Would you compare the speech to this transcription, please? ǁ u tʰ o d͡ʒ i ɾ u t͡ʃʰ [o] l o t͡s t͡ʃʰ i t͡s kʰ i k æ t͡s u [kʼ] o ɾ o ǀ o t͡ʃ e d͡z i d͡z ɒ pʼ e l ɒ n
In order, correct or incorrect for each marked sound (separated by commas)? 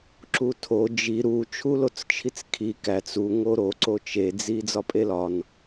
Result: incorrect, incorrect